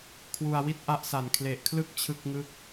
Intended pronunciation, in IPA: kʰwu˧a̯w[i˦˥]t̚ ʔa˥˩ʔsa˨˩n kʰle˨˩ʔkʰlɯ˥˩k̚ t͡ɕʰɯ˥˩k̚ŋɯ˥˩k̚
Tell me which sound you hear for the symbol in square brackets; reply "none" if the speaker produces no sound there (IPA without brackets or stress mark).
i˥˩